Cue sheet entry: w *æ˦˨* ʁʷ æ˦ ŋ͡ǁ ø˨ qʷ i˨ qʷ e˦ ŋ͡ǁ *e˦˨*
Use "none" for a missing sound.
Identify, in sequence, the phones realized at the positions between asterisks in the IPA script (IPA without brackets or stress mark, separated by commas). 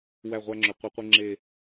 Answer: æ˦˨, e˦˨